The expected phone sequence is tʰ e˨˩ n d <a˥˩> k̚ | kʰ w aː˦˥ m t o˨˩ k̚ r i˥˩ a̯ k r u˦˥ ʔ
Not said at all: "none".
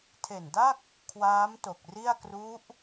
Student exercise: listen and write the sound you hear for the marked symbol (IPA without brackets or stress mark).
a˥˩